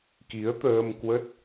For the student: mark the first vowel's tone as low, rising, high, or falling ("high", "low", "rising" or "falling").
rising